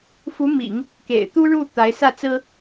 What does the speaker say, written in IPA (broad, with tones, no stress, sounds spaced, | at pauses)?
f u˧˥ m ḭ˨˩˦ ŋ | k ḛ˨˩ ɪ̯ t̪ u˥ ɻ u˥˩ t̪ a˧˥ ɪ̯ s ä˥˩ t͡s ɹ̩˥